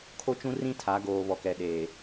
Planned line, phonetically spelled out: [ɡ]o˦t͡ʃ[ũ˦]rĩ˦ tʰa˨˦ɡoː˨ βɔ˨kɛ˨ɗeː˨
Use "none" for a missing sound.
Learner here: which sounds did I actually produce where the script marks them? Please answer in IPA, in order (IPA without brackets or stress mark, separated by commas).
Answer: kʰ, ũ˦